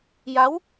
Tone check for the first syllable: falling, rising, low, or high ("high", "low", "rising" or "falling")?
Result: rising